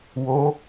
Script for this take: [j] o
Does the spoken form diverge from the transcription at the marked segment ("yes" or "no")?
yes